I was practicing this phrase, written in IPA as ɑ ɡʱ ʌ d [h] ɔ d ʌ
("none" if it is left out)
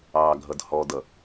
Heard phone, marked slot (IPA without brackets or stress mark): h